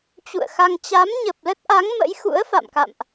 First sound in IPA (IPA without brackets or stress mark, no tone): t͡ɕ